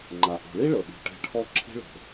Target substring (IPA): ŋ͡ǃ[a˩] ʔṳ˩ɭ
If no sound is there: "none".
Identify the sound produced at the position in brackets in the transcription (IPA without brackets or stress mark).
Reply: a˩